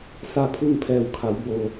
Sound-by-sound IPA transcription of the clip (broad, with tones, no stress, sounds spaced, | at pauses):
s a˥˨ pʰ u˥˨ ŋ pʰ ɛː˧˩ w kʰ a˩˧ w b o˩